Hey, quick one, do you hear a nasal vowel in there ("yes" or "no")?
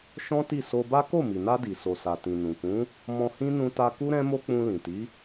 yes